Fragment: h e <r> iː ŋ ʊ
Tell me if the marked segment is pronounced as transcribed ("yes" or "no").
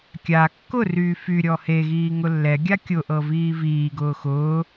no